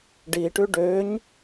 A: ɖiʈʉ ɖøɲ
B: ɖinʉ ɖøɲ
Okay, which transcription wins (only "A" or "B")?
A